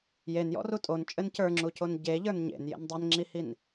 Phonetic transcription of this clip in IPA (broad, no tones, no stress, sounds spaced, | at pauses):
j e n j ɔ̰ r u tʼ o n t͡ʃʼ ɘ n c ə˞ ŋ͡ǁ u c o n ɟ e ʎ ə˞ n ɲ ḛ n j ḛ n dˤ e n ŋ͡ǁ i h i n